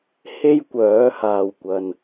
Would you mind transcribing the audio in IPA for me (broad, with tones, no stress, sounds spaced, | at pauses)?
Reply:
h e˥ j kʷ œː˨˥ h aː˨ w kʷ ɐ˨ n